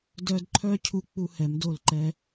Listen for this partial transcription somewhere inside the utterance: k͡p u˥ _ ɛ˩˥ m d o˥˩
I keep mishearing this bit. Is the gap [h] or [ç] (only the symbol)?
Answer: h